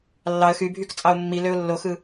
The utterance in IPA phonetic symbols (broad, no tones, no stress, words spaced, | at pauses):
lːɑə̯ xybʱykt͡sʼɑʊ̯ mːiløʊ̯ lːoxɯ